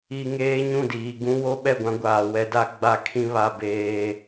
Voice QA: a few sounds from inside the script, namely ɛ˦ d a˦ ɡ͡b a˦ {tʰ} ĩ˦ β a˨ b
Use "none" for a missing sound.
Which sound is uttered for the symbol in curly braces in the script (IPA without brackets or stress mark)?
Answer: kʰ